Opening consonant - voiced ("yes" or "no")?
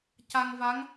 no